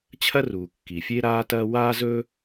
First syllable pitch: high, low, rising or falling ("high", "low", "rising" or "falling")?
high